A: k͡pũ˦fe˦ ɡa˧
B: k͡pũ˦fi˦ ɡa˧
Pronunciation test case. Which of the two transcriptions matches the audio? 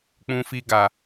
B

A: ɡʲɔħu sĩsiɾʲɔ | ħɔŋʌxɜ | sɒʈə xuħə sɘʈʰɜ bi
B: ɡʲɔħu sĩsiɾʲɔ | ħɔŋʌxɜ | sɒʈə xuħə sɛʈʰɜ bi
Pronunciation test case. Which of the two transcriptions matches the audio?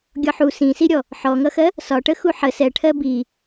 B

